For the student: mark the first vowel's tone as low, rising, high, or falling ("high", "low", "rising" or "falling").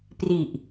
low